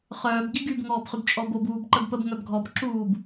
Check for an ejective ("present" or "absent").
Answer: present